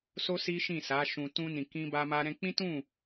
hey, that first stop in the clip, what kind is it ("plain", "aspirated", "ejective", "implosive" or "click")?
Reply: plain